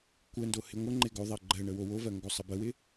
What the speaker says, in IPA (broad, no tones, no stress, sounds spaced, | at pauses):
kʷ ə n d o h ɪ ŋʷ ə ŋ͡ǃ ɪ ɡ o ðˤ ɜ ɡ͡ǃ ɜ ɳ ə w o w o v ɜ ŋ ɡ o sˤ ə b ə w ɪ